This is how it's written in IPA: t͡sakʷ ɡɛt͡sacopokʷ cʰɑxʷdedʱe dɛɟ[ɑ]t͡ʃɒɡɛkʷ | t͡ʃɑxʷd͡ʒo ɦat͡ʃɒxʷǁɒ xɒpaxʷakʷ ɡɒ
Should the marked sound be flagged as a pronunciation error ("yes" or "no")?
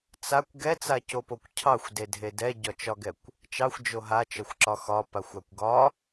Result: yes